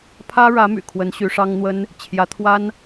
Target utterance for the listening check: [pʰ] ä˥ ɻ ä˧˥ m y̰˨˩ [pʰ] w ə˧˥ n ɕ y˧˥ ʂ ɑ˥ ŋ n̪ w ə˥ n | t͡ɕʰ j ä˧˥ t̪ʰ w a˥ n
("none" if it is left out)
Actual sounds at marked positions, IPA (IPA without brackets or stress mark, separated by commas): pʰ, kʰ